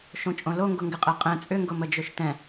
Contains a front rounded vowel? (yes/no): yes